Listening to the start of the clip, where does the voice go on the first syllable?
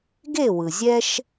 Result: falling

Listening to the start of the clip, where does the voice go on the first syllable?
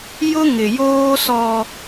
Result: high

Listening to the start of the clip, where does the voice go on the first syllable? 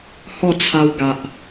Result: falling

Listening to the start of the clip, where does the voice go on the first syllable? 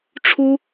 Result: high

